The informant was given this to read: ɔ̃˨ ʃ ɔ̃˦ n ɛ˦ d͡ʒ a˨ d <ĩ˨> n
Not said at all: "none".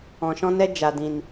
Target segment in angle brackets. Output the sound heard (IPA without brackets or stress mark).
ĩ˨